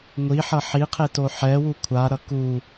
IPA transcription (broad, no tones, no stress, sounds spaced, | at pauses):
ŋʷ i ħ ʌ ħ i qʰ e t o ħ ɛ w u kʷʰ a ɾ ʌ k u